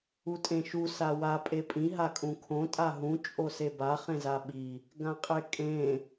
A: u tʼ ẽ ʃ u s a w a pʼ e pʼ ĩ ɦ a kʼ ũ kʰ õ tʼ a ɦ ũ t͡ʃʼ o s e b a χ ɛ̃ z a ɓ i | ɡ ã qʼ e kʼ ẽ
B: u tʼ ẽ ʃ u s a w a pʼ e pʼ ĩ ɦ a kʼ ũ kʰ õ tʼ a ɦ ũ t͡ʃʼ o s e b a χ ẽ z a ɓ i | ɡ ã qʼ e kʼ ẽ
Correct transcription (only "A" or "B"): B